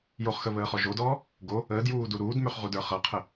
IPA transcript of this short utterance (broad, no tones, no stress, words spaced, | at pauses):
joχxəβəːχɔ ʒodɔː | ɡo | əːdjuːdu ɾuːdmøχʁudə˞ χʌqʰə